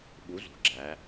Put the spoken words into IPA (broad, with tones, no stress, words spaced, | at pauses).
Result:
ɓu˨˥zṳ˩˧ɡ͡ǁæ˩˧